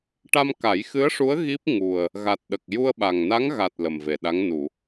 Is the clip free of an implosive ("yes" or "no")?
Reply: no